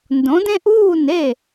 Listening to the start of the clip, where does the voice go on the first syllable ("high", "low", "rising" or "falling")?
rising